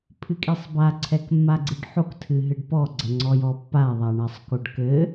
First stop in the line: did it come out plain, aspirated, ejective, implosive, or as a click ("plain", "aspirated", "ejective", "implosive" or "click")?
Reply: aspirated